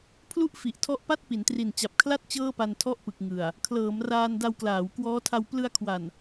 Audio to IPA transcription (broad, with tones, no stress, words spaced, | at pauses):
pʰlu˥˩ʔfi˨˩ʔtʰɔ˦˥ʔpa˥˩t̚ pi˩˦ntri˨˩nt͡ɕa˨˩p̚kʰla˥˩t̚ t͡ɕɤː˥˩pa˧ntʰɔ˥˩ʔpɯ˨˩k̚ ŋɯ˨˩a̯ | kʰlɤː˩˦mraː˧n da˧wklaː˩˦wkwɔː˦˥tʰa˧w plɯ˧a̯kʰwa˨˩n